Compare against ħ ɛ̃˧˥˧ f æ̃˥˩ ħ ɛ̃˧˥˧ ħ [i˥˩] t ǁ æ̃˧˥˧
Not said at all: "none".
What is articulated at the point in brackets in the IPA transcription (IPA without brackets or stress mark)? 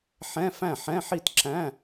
i˥˩